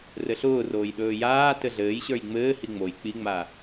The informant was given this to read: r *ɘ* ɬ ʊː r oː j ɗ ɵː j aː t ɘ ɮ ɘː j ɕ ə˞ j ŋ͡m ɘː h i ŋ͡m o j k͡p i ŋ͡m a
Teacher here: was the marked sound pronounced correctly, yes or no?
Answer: yes